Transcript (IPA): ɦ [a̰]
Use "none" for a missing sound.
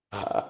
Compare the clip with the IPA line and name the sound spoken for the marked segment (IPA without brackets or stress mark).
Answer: a̰